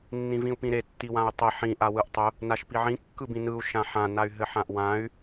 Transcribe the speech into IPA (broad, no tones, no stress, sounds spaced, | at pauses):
nː ĩ v ĩ u̯ p ĩ ɾ e tː i w ã u̯ tˤ e ħ ĩ ʔ a w ɯ ʔ tˤ ʊ | n a ʃ p i ʕ ĩ kː ɯ b ĩ n ɯ u̯ ʃ ã ħ ã n a y̯ ɦ ɘ ħ ã ʔ w ã y̯